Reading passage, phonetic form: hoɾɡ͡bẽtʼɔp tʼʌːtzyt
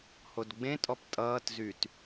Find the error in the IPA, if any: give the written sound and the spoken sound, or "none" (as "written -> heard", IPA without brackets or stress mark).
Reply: ɾ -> d